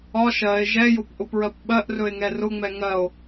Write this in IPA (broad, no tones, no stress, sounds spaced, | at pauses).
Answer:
ɒ ʃ ɜ e̯ ʒ ɛ j ʊ p ʔ ʊ p ɹ ɜ p ɓ ɜ ʔ r ɵ e̯ ŋ ɛ r ʊ ŋ͡m ɛ ŋ ɜ o̯